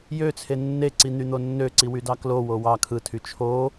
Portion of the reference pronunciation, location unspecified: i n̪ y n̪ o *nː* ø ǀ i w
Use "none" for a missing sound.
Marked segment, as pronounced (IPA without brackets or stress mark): nː